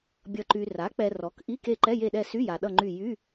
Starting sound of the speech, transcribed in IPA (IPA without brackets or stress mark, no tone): bʲ